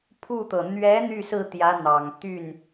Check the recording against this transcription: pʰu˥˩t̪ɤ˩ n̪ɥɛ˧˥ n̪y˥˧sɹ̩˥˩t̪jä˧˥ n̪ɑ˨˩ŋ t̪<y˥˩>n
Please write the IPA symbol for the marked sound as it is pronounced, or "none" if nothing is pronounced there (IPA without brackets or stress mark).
y˥˩